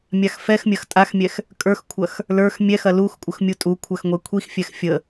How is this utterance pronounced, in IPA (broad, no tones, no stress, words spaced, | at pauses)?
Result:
mʲaxfɛxmʲɐx tʼaxmʲɛx | kʼə˞xkʷʰɐx | lə˞x mʲɛxɐ luxkʷʼəx mʲutʼukʷʰɐx ŋʷɛkʷʰixfʲɛx fʲə